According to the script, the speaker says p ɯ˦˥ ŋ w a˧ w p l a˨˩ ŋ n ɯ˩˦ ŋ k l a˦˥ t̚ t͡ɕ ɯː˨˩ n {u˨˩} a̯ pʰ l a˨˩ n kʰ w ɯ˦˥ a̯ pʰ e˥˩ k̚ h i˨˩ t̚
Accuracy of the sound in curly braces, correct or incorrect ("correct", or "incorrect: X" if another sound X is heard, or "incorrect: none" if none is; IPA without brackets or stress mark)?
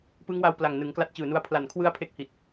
incorrect: u˧